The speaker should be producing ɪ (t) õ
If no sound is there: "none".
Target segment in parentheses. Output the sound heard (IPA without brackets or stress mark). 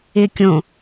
kʲ